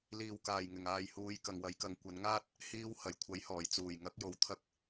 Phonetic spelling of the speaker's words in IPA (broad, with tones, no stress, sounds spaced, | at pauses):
l iː˨˩ w k aː˨˩ j ŋ ɪ˨˩ ŋ aː˨ j h uː˨˧ j k ɐ˨ ŋ w ɐ˨˥ j k ɐ˨˧ ŋ kʷ ɐ˨˧ n ŋ aː˥ t̚ | h iː˧ w h ɐ˨˩ j kʷʰ ɐ˨˥ j h ɔː˨˩ j t͡s uː˨˩ j ŋ ɐ˨˥ k̚ j o˧ w t̪ʰ ɐ˥ k̚